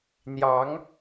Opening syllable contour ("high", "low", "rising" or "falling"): rising